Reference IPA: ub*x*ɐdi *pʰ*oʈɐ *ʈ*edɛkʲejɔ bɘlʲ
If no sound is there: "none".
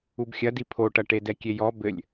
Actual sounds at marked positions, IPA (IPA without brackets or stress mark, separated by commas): xʲ, pʰ, ʈ